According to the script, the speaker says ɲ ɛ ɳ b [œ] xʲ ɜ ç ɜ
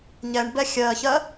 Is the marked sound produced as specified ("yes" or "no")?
no